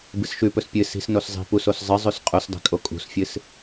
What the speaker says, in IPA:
bɨsʃʉpɵs pʲɨ si̤snos zˤi̤ pusos zˤɨzˤʉs qʼusdˤi̤ kʼokʼṳsfʲɨs

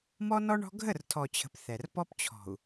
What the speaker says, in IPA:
mɔ˦nɔ˦ɳɔ̤˦ ɡʱə˦˨rtʰɔ˨t͡ɕʰə̤˨p θɛ˨r pɔ˦pt͡ɕʰɔ̤˨u̯

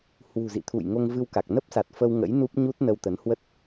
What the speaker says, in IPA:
hwṳ˨˩zḭ˧˨t̪ʰṵ˧˨j ŋo˧ŋvɨ˧wka˨˩k̚ nə˦˥p̚sa˨˩t̚fə˧w ŋə̰˧˥jnu˦˥p̚ɲu˦˥t̚ nə˧wt̪ə˨˦n hwə˦˥t̚

